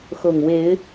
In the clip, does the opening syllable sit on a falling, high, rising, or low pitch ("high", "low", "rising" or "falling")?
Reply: low